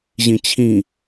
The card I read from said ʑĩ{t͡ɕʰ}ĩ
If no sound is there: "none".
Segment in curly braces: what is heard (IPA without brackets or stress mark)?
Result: t͡ɕʰ